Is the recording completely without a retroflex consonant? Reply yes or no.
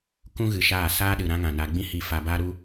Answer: yes